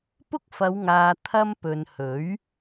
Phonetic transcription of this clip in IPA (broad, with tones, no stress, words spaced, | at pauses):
pʊ˥k̚fɐ˨˧wŋaː˨ t̪ʰɐ˧m pɵ˨nhɵ˨˥ɥ